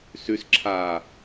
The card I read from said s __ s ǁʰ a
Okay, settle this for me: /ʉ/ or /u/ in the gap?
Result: ʉ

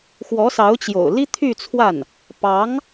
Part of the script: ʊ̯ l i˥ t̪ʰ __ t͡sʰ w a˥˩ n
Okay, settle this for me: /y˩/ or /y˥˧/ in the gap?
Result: y˥˧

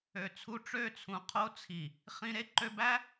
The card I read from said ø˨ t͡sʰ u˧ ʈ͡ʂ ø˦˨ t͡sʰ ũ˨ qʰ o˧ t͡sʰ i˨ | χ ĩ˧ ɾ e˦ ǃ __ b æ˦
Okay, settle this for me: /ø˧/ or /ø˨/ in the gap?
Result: ø˧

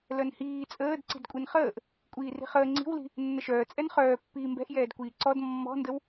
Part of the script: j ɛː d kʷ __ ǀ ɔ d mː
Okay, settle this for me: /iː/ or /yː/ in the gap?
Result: iː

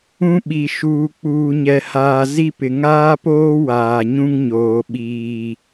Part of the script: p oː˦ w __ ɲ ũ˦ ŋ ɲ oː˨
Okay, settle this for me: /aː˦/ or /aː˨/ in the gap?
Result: aː˨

